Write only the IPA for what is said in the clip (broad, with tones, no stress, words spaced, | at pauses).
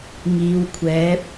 ŋiː˨˧wkʷʰɛː˨˥p̚